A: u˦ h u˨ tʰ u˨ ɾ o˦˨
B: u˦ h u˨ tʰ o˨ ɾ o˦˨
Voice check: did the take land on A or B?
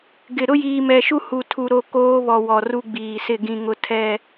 A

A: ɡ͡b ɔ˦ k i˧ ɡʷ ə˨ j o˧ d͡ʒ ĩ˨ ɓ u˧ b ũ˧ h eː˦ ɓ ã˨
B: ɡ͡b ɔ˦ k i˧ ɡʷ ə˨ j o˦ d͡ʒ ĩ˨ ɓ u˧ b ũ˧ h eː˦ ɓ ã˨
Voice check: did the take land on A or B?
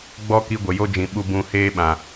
B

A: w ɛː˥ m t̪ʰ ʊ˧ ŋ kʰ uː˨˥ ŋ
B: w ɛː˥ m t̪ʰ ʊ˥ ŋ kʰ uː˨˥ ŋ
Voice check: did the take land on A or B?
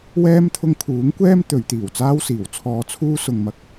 A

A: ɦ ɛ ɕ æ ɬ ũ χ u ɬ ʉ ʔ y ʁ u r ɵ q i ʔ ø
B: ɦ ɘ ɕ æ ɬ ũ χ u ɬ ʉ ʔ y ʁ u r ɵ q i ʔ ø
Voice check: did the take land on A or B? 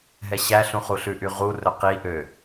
A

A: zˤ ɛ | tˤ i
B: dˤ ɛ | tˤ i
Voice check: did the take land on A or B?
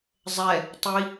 A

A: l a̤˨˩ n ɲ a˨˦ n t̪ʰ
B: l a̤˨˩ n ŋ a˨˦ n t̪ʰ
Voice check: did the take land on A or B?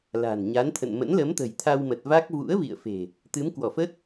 A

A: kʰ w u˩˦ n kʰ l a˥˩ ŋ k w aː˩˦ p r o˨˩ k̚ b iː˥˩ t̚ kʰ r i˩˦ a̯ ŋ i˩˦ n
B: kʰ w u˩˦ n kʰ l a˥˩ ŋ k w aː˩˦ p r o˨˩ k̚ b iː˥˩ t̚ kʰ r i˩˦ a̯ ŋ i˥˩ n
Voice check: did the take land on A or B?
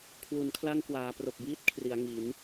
A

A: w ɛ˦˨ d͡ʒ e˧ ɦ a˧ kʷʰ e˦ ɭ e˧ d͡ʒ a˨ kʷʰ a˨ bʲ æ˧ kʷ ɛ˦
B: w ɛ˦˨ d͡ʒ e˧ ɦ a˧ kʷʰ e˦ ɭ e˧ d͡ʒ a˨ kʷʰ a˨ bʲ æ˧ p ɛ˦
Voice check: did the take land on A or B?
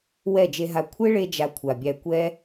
A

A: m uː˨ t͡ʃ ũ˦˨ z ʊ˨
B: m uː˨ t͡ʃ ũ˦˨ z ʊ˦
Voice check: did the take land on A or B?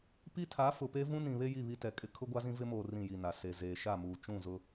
B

